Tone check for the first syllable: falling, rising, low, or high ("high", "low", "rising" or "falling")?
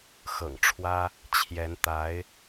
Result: low